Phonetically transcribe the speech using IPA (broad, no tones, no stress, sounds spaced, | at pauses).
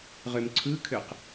ʁ ø m ǀʰ ɯ kʰ ø q